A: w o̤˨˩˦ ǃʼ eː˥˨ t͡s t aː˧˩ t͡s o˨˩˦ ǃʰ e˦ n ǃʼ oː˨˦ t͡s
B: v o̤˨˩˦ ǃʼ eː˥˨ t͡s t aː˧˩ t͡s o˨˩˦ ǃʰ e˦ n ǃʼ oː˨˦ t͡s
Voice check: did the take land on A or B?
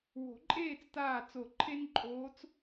A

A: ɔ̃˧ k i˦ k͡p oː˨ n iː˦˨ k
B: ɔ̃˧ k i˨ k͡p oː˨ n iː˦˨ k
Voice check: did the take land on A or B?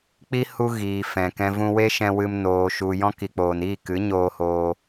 B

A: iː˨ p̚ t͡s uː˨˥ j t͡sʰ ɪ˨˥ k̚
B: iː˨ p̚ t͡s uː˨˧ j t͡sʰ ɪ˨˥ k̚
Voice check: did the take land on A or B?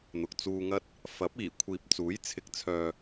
A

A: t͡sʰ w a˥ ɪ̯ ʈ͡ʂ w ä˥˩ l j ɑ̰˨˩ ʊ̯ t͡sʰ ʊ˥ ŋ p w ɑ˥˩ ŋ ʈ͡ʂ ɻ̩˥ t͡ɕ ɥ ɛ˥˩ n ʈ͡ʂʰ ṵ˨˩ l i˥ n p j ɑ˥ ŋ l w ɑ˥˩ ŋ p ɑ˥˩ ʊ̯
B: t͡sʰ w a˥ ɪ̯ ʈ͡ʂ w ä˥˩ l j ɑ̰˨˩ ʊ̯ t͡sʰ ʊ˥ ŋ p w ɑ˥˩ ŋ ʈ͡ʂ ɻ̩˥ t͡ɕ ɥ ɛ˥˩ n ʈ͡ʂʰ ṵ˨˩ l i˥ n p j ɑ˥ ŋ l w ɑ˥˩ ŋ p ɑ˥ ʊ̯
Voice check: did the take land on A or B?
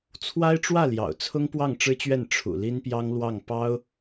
B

